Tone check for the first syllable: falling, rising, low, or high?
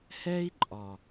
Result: high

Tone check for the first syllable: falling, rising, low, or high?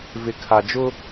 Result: low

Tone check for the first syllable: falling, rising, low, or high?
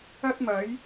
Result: high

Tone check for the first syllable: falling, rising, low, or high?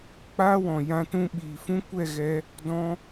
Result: high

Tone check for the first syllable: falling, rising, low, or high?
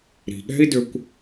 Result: low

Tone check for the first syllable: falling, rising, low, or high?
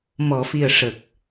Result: low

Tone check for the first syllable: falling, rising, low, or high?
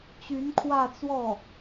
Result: rising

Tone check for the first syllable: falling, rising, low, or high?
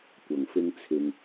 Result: low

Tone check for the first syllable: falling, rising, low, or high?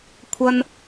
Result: high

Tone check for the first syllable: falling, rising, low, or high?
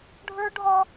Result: high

